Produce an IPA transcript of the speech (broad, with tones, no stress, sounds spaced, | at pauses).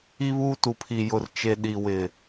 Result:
i˦ β uː˦ t u˨ pʰ i˨ j ʊ˨ r t͡ʃ e˨ ɗ i˨ w ɪ˨